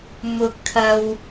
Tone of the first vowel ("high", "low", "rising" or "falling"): high